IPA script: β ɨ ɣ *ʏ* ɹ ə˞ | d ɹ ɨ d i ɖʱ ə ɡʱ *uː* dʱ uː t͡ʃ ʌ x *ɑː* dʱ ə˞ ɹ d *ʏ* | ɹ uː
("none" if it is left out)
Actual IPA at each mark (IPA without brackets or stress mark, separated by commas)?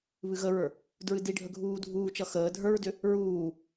ə, uː, əː, ʏ